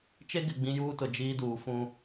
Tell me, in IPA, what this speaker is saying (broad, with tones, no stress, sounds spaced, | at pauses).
t͡ʃ e˦ ɡ ɪ˨ ɡ͡b ĩ˦ j uː˦ t ʊ˨ d͡ʒ iː˦ d uː˨ f ũ˦